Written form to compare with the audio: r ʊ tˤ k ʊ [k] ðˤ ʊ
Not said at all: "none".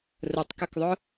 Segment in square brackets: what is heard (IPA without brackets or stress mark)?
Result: k